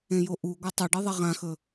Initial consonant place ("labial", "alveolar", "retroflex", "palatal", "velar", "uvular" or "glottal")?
palatal